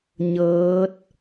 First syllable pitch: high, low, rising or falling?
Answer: rising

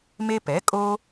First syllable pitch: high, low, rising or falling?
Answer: high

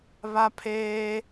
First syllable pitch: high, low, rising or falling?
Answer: high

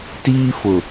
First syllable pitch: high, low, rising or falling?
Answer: high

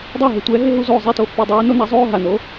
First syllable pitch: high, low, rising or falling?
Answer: falling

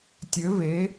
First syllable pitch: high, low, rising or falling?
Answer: rising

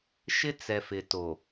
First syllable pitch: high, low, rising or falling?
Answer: high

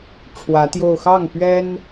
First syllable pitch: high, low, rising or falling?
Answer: rising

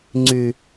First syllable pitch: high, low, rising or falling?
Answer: low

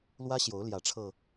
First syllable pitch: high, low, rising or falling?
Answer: high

